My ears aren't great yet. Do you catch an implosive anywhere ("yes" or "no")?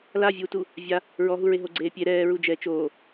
no